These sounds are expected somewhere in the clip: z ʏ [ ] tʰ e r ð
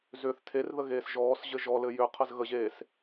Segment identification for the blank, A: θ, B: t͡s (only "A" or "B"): A